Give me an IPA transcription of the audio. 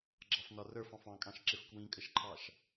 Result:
ɡ͡ǁ ɑ f n ɒ r ə˞ f ɑ̃ f ɑ̃ kʼ ɑ̃ ʃ ǁ ɪ f k w ĩ kʼ ə ʃ ǃʰ ɑ ʃ

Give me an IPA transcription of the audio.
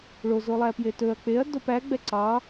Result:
ɭ o z o lˠ æ p j e t ɵ ɐ̯ k͡p e ɐ̯ d o p æ ɡ͡b ɛ ǀ ɑ

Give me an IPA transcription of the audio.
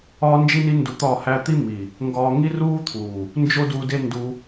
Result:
ɒː˦ n d͡ʒ i˦ n i˦ n d u˧ t̪ ɒ˦˨ h æ˦ t̪ i˦ m i˨ | ŋ ɡ ɒː˦ ŋ i˦ r uː˦ t̪ʰ uː˨ | n d͡ʒ o˦ d u˧ d e˦ n d u˧

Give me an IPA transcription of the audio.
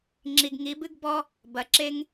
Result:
ŋ͡ǁ i˨ ɡ ŋ i˨˦ b ɨ˦ ɡ b ɔ˦ | b ɐ˨ ǁ e˦ ŋ

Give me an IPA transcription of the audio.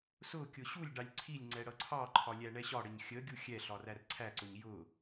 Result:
s ʊ kʲ ʊ ɕ u lʲ ɖ ɑ lʲ ǀʰ i lʲ ŋ͡ǀ ɛ ɽ ʌ ǀʰ ɑ ǃʰ ɒ lʲ æ ɳ ɛ ɕ ɒ ɽ ə ɲ xʲ ə ɡʲ u xʲ ɛ ɬ ɒ r æ r ǀʰ æ ǀ ʊ ɲ j ʊ

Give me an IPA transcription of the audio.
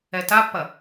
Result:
ɛ t a pː ɐ

